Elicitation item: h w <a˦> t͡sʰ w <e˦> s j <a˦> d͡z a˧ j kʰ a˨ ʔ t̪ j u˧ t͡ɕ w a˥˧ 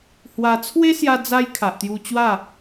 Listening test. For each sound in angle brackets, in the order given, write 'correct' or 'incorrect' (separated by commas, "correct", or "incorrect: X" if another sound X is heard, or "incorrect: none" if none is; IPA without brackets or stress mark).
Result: incorrect: a˧, correct, incorrect: a˧